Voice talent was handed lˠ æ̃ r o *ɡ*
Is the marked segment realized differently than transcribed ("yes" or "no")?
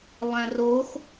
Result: yes